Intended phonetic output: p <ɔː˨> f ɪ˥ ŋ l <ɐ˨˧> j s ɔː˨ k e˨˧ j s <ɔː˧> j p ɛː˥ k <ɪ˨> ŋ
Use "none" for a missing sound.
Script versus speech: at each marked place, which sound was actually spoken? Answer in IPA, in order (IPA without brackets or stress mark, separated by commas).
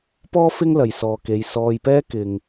ɔː˥, ɐ˨, ɔː˧, ɪ˨